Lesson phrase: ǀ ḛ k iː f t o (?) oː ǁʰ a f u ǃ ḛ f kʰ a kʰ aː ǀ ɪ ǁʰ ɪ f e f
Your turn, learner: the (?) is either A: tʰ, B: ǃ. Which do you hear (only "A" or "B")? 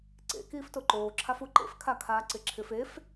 B